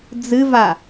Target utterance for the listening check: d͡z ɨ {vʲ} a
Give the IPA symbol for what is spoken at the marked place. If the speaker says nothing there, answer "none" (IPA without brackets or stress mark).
v